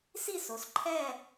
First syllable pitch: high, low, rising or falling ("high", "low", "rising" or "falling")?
falling